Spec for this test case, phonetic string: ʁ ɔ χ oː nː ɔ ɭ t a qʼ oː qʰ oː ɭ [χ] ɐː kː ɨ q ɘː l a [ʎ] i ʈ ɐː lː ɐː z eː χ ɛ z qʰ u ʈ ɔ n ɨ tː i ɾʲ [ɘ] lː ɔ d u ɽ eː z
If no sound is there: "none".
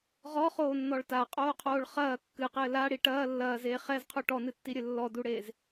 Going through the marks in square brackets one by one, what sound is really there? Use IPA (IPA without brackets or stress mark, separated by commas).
χ, ɽ, ɘ